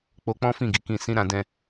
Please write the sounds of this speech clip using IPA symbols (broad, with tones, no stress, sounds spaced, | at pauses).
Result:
k͡p o˧ k͡p ɔ̃˦ f ĩ˦˨ ɡ i˨˦ k ĩ˦˨ s ĩ˧ ɾ ã˧ d ɛ̃˧